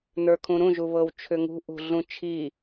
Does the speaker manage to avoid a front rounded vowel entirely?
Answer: no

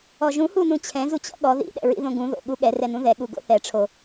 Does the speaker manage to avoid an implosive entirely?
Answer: no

